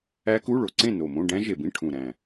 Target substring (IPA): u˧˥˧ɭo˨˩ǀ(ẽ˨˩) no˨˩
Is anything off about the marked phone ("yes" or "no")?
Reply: yes